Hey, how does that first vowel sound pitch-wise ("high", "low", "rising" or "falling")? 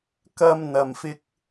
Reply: high